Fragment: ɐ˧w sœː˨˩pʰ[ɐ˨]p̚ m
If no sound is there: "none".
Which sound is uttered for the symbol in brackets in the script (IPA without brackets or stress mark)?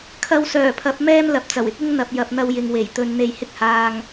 ɐ˨˥